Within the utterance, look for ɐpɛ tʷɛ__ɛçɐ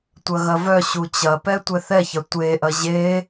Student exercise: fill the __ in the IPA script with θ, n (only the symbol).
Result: θ